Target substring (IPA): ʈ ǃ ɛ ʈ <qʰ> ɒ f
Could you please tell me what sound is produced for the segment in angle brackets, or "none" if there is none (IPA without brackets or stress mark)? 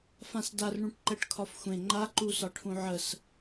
kʰ